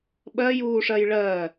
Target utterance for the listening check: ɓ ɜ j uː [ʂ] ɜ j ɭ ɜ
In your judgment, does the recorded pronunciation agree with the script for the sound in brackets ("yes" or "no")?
yes